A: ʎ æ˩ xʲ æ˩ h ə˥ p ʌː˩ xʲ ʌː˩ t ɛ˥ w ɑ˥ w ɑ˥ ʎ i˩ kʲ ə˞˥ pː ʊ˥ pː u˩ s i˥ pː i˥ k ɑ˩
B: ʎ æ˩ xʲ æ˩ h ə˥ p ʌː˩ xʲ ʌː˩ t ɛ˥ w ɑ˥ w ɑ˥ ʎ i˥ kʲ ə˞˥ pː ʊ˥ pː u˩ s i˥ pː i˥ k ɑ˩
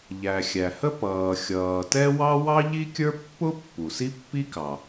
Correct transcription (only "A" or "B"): B